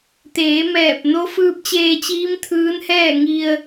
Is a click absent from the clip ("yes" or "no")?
yes